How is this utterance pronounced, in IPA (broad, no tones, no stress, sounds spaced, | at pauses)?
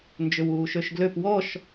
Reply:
n d͡ʒ ʏ w uː ʃ ø ʃ ɡ l ø p w ɔ ʃ